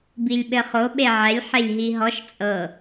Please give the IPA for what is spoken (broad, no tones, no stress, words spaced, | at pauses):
bilʲɓɘχo ɓeʕɛlʲ ħelʲɦiɦɔʃ t͡sʼɤ